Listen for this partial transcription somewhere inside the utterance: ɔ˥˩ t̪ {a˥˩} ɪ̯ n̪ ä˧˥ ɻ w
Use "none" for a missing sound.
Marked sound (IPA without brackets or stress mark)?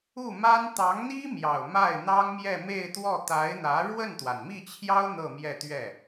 a˧˥